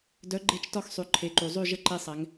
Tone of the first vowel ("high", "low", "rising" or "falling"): rising